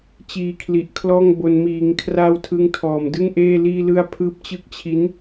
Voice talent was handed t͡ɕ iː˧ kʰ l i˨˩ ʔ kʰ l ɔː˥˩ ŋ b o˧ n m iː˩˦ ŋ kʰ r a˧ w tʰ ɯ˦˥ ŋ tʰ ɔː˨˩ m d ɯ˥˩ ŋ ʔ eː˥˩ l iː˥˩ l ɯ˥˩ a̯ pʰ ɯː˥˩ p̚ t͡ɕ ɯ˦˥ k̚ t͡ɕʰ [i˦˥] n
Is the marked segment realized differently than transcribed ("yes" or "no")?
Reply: no